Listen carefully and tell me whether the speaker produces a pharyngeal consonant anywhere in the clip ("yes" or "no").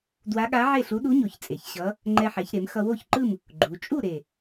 yes